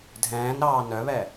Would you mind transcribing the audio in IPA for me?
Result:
dʱɛ̃ːnɾɑː nœβɛ

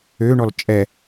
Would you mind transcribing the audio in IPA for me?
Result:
øɳɔl t͡ʃʼɛ

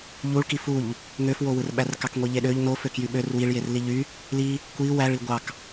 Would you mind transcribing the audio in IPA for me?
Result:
ʎuɭki fuʎ | ŋøfwowɯrɓær kɑkŋʷiʎeɗøʎ noføkjy ɓør wiɭjer liʎy | li | kʷi wæɭi ɡʷɑk

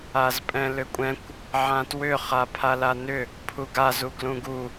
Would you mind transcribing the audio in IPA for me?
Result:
azpʼɛ̃lʏkʷʼɛ̃kʷ | ʕãtwʏ χapʰalanʏ | pʰuɡa zuɡlũɡu

